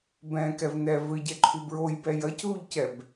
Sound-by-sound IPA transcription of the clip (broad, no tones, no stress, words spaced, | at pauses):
bɛ̃kɛv nɛ vɘɟɛǃʰu bɹojbɛ jɐcðuʎcɛb